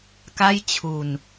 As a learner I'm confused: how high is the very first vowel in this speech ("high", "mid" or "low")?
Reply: low